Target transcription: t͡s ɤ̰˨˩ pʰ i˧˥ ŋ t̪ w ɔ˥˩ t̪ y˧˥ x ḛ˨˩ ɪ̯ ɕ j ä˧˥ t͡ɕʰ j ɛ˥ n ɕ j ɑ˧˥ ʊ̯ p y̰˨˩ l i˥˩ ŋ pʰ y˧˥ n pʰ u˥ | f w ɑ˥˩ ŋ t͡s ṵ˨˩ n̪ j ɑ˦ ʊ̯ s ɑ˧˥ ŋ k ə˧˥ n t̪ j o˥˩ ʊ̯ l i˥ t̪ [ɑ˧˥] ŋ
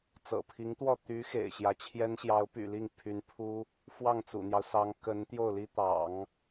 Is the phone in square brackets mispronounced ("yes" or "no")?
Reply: yes